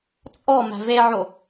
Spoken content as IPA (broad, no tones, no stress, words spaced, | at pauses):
t͡sʼɔ mæ̤veʕo